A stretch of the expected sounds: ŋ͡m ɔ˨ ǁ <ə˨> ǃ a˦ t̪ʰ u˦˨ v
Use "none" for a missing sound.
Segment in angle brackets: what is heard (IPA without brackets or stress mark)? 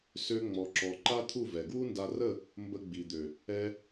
ɔ˨